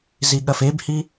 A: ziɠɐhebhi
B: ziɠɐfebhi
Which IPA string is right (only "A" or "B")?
B